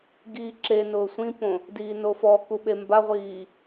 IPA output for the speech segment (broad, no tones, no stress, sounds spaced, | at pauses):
ɡ iː ǁ e n ʊː sʷ ĩ p õ | d iː n o f ɔ k u ɓ e m b a ʁʷ iː